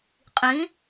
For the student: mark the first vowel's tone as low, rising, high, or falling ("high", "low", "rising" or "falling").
rising